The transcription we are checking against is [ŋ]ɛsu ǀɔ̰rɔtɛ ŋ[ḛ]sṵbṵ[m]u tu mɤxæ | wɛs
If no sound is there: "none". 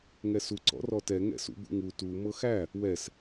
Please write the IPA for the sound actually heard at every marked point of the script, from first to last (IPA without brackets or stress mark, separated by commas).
ŋ, ɛ̰, ŋ